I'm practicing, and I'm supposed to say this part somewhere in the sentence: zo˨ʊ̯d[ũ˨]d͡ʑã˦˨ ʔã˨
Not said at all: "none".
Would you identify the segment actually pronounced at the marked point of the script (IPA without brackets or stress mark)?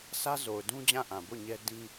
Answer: ũ˦